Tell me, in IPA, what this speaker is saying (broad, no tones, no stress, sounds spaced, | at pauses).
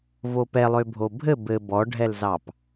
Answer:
v o p ɛ lˠ ø bʱ o bʱ ɘ b ɘ b ɔ ɖʱ ɛ l z ɑ p